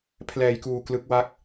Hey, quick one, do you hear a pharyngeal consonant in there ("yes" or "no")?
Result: no